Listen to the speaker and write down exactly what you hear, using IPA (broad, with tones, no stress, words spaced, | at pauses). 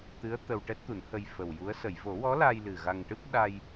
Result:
t̪ɨ˧˥ə̯ t̪ə˧wʈɛ˦˥t̚t̪u˨˩˦nhə˧j fə˨˩wju˧˥ə̯ sə˨˩˨jvo˨˩˦wɔ˧˥laː˧j lɨ˨˩ ɣa˧ŋʈɨ˦˥p̚ ɗa˧j